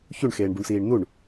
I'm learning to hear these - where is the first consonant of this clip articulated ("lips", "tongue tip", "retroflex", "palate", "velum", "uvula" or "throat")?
palate